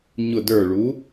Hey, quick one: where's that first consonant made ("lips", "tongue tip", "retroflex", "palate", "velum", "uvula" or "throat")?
palate